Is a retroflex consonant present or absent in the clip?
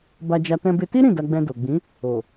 absent